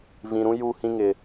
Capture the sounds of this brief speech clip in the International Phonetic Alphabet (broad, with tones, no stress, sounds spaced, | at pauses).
v ĩ˨ ɾ ũ˦ j u˦˨ h ĩ˦ ŋ ɪ˨